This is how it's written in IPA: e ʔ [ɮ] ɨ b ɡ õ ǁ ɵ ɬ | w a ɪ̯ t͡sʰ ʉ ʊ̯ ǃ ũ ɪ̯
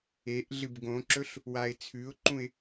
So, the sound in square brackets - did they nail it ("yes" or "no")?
yes